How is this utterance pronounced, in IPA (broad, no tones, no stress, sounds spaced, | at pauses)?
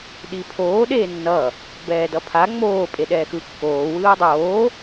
ɗ i pʰ oː ɗ eː nː ʌ | b ɛː d ʌ pʰ a ŋ͡m oː pʼ e ɗ ɛː x ɯ kː oː w ɯː dˤ oː